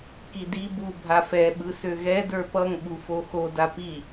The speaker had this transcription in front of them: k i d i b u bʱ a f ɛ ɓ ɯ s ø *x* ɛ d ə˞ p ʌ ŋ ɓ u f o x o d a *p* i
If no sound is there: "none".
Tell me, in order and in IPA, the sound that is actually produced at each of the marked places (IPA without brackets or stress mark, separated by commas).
ɣ, p